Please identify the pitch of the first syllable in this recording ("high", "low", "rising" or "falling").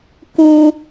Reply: low